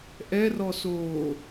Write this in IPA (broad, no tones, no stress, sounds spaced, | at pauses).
ʔ ɛ r ɔ s oː